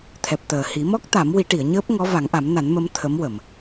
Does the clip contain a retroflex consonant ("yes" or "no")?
yes